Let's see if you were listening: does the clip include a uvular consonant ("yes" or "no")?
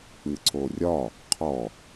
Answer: yes